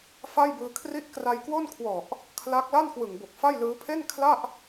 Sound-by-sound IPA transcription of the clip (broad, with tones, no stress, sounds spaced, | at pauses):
f a˥˩ j b ɯː˧ kʰ r i˥˩ ʔ k r a˧ j k w o˥˩ n kʰ w ɔ˨˩ ʔ | kʰ l a˦˥ k̚ l a˥˩ n k w ɯ˨˩ ŋ b o˨˩ k̚ f a˥˩ j l ɯː˦˥ pʰ e˥˩ n kʰ l a˥˩ ʔ